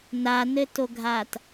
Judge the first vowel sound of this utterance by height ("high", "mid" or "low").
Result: low